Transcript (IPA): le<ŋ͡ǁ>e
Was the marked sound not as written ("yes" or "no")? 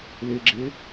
yes